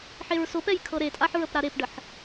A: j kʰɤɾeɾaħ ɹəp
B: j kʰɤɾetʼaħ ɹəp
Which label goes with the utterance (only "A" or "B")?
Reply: B